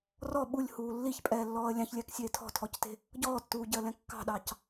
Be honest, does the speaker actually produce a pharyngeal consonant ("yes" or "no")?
no